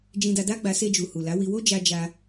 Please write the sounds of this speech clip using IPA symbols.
d͡ʒ ĩ˧ d a˧ d a˦ ɡ͡b a˧ s e˧ d͡ʒ u˨ h u˨ l a˨˦ w i˧ w o˦ d͡ʒ a˧ d͡ʒ a˧

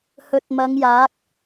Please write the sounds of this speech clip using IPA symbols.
h ɵ˨ t̚ m ɐ˨˧ ŋ j aː˨˥ k̚

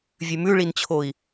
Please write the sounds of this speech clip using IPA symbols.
vʲ ʉ m ʉ ɭ i n t͡ɕʰ o i̯

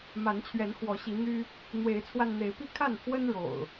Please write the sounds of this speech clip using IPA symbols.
m a˨˦ n t͡ɕʰ ɥ ɛ˨˦ n x w ɔ˨˦ ɕ i˨˦ n̪ y˦ | n̪ w e˨˦ ɪ̯ t͡sʰ w a˧ n n̪ e˨˦ ɪ̯ p i˥˨ kʰ a˥˨ n pʰ w ə˦ n ɻ o̰˨˩ ʊ̯

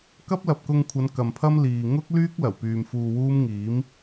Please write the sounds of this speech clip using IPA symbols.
k ɐ˥ p̚ l ɐ˨ p̚ k ʊ˧ ŋ kʷʰ ɐ˨˧ n k ɐ˨ m pʰ ɐ˥ m l iː˨ ŋ ʊ˥ k̚ l yː˥ k̚ l ɐ˨˩ w p yː˨ m f uː˧ w uː˥ m ŋ iː˨˥ m

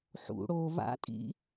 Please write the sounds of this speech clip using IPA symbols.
ħ ṵ ɽ o v a̰ tʼ ḭ

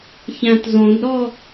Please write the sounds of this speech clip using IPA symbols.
ç æ̃ t z õ d ɾ ɔ

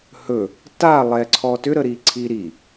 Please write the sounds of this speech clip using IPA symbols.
h ɵ | t a lˠ ɛ ǀʰ ɔ t ʏ ɾ ə ɾ i ǀʰ i ɾ i

